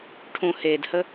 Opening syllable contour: low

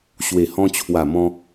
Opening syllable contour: low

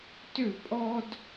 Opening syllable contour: falling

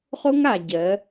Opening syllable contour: high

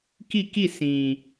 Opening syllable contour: falling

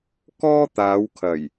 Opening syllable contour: high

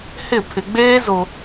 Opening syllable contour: falling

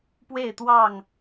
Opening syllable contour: falling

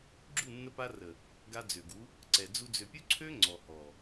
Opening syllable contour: falling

